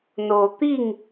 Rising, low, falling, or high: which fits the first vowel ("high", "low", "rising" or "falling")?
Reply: low